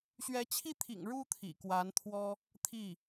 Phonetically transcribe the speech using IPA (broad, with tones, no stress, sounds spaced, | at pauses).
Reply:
ɕ ɥ ɛ˧˥ t͡ɕʰ i˥˩ t̪ʰ ḭ˨˩ ŋ ɻ u˥ t̪ʰ ḭ˨˩ k w a˧˥ n t̪ʰ w ɔ˥ | t̪ʰ i˥˩